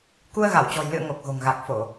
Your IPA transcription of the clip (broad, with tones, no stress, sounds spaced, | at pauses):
k u˧ ə̯ ɣ a˧˩ w t͡ɕ ɔ̤˨˩ j l ɨ̰˧˨ ə̯ ŋ o˨˩ k̚ ɣ o̤˨˩ ŋ ɣ a˨˩ k̚ f o˧˩˨